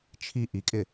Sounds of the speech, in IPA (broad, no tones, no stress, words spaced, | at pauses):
t͡ʃʰi ʔikʼɪ